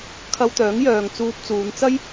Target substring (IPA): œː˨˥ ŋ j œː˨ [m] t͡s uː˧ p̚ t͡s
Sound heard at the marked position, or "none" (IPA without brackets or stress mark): ŋ